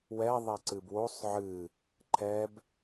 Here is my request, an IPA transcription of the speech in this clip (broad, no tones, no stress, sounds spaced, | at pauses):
w ɛ ðˤ ɛ ǀ ɨ b w o sˤ ʕ ɨ | ǃʰ ɛ b